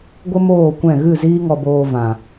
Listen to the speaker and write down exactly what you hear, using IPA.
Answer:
ɡʷ ə˦ m oː˦˨ kʷ ɛ̃˦˨ ɣ ɨ˦˨ z iː˦ ŋ ɔ˧ b oː˧ v ã˨

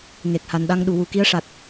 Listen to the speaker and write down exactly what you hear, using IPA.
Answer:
ŋ e˨˩ k̚ h a˨˩ n ɗ a˧ ŋ ɗ u˨˩˨ w u˨˩ k i˧˥ ə̯ ʂ a˨˩ t̚

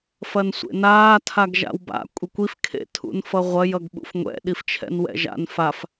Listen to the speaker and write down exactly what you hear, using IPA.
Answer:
f ɐ n sʷ ḛ n aː tʰ a ɡ ʒ a̰ w b a̰ kʷʼ e kʷ i f kʰ ḛ tʰ ṵ n f ʌ ʁʷ ɐ j ʌ ɡ ɓ ṵ f ŋʷ ɛ̰ ɗ i f t͡ʃʰ ɛ̰ n w ɛ̰ ʒ a̰ n f a f

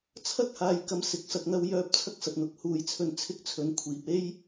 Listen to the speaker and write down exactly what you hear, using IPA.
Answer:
t͡sʰ ɐ˥ k̚ h aː˨ j k ɐ˧ m s ɪ˨ k̚ s ɐ˨ k̚ n̪ ɐ˧ w j œː˧ p̚ t͡sʰ ɐ˥ k̚ s ɐ˨ t̚ n̪ ʊ˨ k̚ h uː˨˧ j t͡sʰ ɵ˧ n t͡sʰ ɪ˥ k̚ t͡sʰ ɵ˨˧ n kʷʰ iː˨ p̚ e˥ j

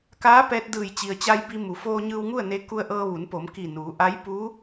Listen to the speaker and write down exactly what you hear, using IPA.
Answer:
k aː˧˥ p ɛː˧ t̚ d ɯː˧˩ j t͡ɕ i˩ ə̯ t͡ɕ a˧ j b i˧ m u˩˧ f oː˧ ɲ ɯː˧ w ŋ u˥˨ ə̯ n e˧ k u˧ ə̯ ʔ ɤː˧ ʋ u˩˧ n p o˩˧ m k i˧˩ n uː˩˧ ʔ a˧˥ j p uː˧˥

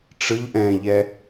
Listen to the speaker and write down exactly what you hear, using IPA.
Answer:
ʈ͡ʂ ɯ ʎ ʔ ɛ̃ ʎ ɛ

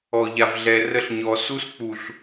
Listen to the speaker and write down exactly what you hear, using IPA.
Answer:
ɔ˨ ʎ a˨ v ɮ ɛ˨ r ə˦ ɬ ɲ ɔ˨ s u˦ s k͡p u˨ ɬ

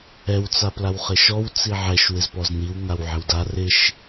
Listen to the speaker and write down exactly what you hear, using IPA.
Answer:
ɛ w t͡s a p l a w χ ɪ ʃ ɔ w t͡s i ʕ ɛ ʃ w ɪ z p ɔ z n̪ i w ŋ a w ʕ ɪ w d a r ɪ ʃ

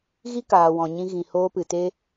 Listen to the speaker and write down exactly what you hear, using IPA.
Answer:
ɣ i˦ k aː˨ w ɔ̃˨ ɲ ĩ˧ ɣ ĩ˨ h oː˧ p ɨ˨ t e˧

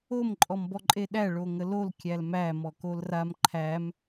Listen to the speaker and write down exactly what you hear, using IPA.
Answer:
o m ǃʼ ɔ m b ɔ ǃʼ e ɗ æ ɭ o ŋ ə l o l kʲ æ l m æ m ɔ k o l r a m ǃʰ æ m

